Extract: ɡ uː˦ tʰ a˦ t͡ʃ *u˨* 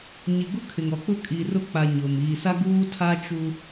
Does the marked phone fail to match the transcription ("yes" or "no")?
yes